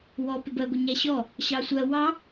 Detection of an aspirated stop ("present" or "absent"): absent